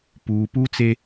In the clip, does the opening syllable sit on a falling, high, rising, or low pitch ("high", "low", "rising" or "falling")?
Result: low